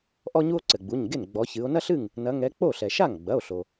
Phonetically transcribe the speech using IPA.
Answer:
ʔɔ˥ɲu˥o̯ ǀɘ˩ɡ͡bu˩˧˩ɲɡe˥˩n ɡ͡bɔ˨˦çɨ˨˦o̯ nɐ˥ɬɨ˥˩ŋ | nɐ˨˦ŋɛ˨˦ k͡po˥˩ɬɛ˩ ʃa˥˩ŋɡ͡bɐ˩˧˩o̯ɬo˩

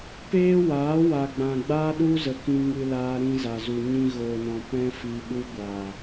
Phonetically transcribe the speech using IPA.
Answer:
peː˦ waː˨˦wa˨ɡ͡bã˨ ɡ͡baː˦ɗu˦zə˨ kĩ˧ŋɨ˧laː˧ ɾĩ˧za˨zu˨ ɲĩ˧ɣoː˨nɔ̃˨ pɛ̃˦ fi˧ɓu˦ ɡʷaː˨

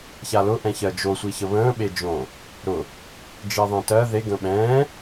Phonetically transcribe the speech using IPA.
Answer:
çalʊ ʔɛ̃çɜd͡ʒo sʷiçəβə̃ː ɓed͡ʒõ | ɾʊ | d͡ʒiðˤẽtɜ ðe ɡə̃ɓɛ̃ː

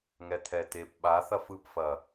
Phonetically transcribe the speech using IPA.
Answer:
ŋɛt̪ʰɛtep ɓaθɐf ɯpfɐ

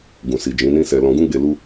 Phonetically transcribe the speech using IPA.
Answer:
ɡũ˨si˨ d͡ʒĩ˨˦nĩ˦sɛ˧ lɔ̃˧ɡũ˦ɡ͡be˧ lu˧

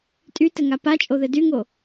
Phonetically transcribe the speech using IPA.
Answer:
tʼytɘŋa pat͡ʃʼoðɘ dyŋo

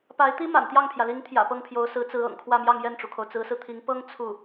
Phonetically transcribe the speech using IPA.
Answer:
pa˧˥ɪ̯t̪i˥ ma̰˨˩nt̪jɑ˥˩ŋpʰjä˩li˧˥ŋ t̪ʰjä̰˨˩pɤ˥˩ŋpʰjo˧˥ʊ̯ sɹ̩˧˥t͡sɹ̩˧˥ ɤ̰˨˩ŋkʰwä˥˧mjɑ˥˧ŋ jɛ˥˩nʈ͡ʂu˩kʰo˩ʊ̯ t͡sɹ̩˧˥sɹ̩˧t̪ʰi˧˥ŋ pɤ˥ŋ t͡sʰu˥˩

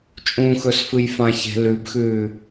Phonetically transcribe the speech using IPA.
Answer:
t͡ʃʼũxɵsfɨj fãçe̤ lʉbxʉː

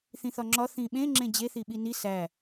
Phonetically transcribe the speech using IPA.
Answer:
θĩθɒŋ͡ǁɒ θĩɓẽ ŋ͡ǁẽd͡ʑe θiɓini sæ

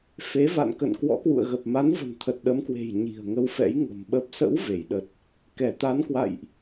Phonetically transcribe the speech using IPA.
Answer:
fe˨˦va̰˧˨nkə̰˧˨n kwɔ̰˧˥kwṵ˧˨ə̯ɣə˨˩p̚ ma˨˦nvə̤˨˩nt̪ʰə˨˩t̚ ɗə˨˦mkwe̤˨˩j ɲi̤˨˩ə̯ŋə˧wfɛ̰˧˥j ŋə̤˨˩m ɓə˨˩p̚sə̰˧˥w ve˧˩jɗə˨˩t̚ | kɛ˧˩t̪a˨˦nkwa̰˧˨jʔ

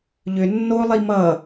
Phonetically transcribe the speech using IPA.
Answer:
ʎʏ nːolˠi mʌ

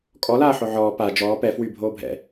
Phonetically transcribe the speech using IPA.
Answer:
kʼɔlaː ħoʕɔː pa d͡ʒɔː pɛ fwy bʱoːbʱɛ̰

